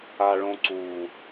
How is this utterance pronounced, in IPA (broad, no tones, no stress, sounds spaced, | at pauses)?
a ɭ õ ǀ u